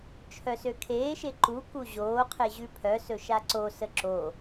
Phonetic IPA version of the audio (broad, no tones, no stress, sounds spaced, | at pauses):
t͡ʃʰ œ s ø kʰ eː ʃ e ǃ u k u ʑ oː qʰ e ʑ ʉ pʰ œ s ɵ ʃ a ǀ o s ə ǁ o